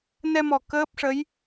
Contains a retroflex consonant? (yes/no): yes